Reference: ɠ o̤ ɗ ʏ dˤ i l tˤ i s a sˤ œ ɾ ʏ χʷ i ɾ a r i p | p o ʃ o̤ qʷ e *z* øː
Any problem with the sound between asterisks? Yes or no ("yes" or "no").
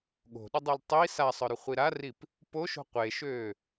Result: yes